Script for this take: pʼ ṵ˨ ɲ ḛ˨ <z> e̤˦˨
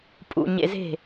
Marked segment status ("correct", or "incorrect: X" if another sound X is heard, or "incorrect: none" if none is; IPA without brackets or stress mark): correct